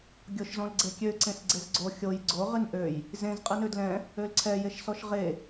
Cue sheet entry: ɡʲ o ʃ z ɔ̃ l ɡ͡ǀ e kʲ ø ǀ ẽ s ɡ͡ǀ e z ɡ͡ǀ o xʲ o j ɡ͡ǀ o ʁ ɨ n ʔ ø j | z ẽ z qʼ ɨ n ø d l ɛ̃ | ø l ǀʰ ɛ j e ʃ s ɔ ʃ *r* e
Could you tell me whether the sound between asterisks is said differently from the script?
yes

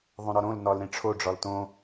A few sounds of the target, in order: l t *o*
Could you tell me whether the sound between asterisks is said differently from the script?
yes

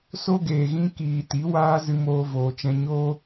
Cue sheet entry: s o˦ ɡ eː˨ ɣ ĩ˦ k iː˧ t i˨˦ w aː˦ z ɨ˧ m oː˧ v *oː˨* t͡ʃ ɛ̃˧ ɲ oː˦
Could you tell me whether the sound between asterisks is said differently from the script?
no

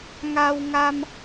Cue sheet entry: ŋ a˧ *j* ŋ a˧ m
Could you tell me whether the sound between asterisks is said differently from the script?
yes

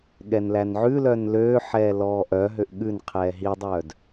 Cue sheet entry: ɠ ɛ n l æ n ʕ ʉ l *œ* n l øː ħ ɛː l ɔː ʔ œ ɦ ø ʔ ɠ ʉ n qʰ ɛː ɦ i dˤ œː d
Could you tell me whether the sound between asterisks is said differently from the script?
no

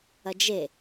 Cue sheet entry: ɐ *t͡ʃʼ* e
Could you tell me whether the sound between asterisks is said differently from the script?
yes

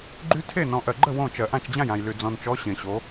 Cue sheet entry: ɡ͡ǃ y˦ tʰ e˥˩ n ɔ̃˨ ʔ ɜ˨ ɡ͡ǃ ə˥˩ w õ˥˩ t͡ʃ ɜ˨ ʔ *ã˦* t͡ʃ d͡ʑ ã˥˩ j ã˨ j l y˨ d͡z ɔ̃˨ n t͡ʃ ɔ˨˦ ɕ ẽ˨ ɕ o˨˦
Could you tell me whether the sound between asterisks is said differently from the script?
yes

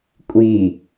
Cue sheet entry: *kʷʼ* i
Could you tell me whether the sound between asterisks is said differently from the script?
no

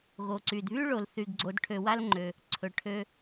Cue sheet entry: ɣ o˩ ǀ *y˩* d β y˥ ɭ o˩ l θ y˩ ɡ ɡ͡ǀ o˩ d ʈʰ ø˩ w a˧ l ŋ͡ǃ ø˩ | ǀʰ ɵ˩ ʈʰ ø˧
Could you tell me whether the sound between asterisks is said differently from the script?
no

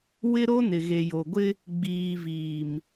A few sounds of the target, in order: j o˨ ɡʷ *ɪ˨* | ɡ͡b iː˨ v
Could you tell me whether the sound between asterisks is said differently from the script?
yes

